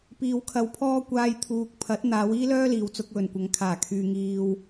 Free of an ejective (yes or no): yes